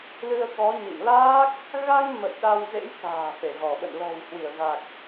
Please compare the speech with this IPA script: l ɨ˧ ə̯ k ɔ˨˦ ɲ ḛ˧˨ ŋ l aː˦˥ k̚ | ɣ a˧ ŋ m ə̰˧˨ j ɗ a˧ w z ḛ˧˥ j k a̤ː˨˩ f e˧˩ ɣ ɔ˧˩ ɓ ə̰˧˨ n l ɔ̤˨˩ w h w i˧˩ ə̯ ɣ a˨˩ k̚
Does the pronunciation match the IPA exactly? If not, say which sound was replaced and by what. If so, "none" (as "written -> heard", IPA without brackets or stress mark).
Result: none